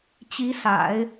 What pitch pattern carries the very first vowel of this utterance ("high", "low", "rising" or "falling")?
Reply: rising